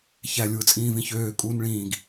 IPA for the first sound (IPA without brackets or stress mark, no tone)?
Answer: ç